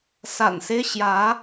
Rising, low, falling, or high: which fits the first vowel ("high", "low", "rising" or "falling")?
low